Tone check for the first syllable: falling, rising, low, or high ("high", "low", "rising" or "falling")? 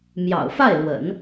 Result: low